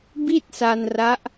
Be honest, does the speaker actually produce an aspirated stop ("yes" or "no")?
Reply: no